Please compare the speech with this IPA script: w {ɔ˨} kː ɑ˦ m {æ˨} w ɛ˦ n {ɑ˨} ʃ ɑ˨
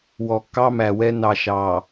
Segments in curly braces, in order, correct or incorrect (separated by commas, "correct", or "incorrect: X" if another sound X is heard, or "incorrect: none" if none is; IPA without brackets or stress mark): correct, correct, correct